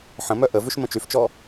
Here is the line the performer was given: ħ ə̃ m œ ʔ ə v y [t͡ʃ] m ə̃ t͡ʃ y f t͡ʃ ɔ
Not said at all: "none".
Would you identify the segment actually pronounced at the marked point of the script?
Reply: ʃ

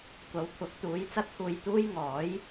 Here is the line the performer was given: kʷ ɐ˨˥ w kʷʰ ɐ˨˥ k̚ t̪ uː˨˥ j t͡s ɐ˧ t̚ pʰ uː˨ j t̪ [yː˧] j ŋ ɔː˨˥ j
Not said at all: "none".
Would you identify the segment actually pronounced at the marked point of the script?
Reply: uː˧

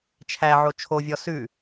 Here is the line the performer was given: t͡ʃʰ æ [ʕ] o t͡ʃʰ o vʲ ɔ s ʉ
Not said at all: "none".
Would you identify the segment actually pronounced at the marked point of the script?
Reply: ʕ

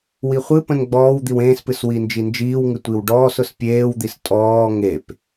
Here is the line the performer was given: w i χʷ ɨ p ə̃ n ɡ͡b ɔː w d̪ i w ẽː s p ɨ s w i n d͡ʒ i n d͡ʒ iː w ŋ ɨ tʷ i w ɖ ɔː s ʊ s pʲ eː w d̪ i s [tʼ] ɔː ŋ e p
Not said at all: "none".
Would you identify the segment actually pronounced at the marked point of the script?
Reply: tʼ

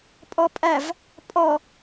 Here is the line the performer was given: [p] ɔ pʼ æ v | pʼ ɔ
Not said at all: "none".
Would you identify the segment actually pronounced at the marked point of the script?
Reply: pʼ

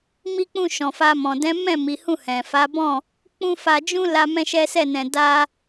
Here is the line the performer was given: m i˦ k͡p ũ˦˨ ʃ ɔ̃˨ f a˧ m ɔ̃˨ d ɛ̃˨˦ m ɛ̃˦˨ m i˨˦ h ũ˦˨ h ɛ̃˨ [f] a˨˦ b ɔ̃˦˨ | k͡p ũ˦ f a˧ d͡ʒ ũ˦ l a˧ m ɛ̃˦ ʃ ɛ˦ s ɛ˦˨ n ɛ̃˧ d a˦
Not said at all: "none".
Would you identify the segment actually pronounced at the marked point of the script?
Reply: f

